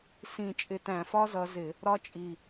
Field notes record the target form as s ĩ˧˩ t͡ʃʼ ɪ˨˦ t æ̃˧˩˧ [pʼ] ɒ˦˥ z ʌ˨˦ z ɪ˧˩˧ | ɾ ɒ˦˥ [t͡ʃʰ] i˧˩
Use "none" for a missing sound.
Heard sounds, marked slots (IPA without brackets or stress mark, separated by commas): f, t͡ʃʼ